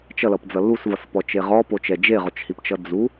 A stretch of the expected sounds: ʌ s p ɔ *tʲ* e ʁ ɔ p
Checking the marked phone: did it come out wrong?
yes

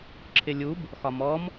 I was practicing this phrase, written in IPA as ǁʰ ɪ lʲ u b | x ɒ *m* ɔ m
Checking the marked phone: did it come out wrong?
no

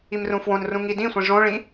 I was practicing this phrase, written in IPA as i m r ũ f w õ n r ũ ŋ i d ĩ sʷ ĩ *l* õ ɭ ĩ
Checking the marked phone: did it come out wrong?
yes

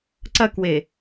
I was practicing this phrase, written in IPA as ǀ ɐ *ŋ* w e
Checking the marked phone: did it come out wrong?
yes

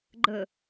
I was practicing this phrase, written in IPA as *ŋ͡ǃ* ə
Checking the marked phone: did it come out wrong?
yes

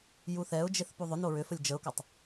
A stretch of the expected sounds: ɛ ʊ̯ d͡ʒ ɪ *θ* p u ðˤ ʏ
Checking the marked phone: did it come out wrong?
no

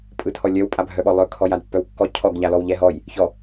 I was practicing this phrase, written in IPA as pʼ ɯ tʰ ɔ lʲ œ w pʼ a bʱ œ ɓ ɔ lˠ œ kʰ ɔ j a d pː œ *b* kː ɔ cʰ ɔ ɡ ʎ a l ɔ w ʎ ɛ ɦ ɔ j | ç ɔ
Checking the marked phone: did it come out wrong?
yes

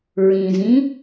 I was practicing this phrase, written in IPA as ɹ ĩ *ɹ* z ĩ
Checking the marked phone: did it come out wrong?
yes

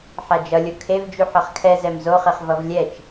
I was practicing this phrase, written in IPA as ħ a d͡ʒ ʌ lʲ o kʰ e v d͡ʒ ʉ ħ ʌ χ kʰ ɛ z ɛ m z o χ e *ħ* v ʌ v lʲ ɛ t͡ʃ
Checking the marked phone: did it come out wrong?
yes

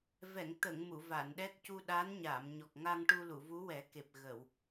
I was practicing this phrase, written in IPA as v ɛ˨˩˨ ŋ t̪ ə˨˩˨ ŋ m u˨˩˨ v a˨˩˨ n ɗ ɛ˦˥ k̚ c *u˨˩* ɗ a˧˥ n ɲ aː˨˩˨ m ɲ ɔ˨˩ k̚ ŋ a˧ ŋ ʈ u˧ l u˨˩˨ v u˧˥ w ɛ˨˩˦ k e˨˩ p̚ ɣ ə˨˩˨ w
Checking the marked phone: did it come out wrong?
yes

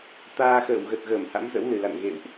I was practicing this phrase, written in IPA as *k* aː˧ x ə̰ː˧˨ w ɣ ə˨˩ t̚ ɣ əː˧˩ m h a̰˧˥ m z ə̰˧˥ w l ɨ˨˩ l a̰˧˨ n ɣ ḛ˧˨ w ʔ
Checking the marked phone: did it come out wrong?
yes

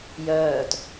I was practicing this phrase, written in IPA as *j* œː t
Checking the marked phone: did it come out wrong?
no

